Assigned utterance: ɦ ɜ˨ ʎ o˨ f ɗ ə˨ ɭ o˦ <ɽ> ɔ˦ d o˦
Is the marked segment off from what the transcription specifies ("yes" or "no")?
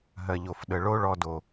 yes